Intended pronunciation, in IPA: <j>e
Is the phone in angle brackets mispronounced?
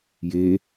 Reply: no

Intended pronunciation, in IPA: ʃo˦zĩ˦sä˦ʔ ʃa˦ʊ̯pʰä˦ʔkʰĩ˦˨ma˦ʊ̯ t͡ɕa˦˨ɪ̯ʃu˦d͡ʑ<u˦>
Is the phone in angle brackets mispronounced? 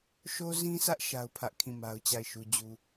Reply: no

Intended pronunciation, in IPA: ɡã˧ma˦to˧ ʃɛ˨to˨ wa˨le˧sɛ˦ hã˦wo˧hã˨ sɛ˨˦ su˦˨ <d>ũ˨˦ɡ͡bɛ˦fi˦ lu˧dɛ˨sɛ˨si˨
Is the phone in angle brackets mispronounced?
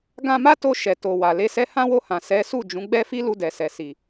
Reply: yes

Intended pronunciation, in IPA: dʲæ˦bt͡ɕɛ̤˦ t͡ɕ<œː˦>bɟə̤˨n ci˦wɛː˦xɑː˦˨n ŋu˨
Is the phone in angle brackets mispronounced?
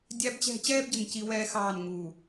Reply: yes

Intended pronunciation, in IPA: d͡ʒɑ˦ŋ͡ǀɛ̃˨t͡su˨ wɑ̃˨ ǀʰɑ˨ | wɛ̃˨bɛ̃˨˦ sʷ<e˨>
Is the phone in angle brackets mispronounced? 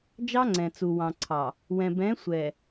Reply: yes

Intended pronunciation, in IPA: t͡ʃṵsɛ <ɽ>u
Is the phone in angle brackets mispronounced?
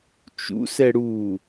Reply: no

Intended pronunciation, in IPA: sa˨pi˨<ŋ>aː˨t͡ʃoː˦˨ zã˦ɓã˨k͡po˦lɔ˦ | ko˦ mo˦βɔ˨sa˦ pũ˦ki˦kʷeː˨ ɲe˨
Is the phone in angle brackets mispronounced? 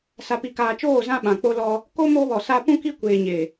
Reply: yes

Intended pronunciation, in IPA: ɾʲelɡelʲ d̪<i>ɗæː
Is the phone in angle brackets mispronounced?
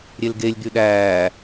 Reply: yes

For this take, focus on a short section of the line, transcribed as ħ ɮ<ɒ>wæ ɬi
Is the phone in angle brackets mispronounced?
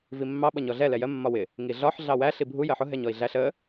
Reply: yes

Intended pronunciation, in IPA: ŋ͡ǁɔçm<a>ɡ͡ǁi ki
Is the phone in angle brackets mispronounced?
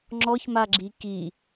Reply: no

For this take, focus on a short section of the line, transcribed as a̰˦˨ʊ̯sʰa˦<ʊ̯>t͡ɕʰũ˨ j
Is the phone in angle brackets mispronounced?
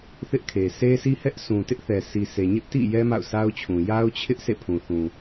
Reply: no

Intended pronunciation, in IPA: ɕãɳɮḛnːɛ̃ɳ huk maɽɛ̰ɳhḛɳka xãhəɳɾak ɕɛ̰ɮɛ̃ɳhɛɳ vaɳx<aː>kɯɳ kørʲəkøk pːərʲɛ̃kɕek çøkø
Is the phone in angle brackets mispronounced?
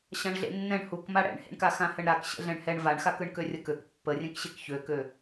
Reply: yes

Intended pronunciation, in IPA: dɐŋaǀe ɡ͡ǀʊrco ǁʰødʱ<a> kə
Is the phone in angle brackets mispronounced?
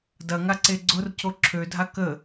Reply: no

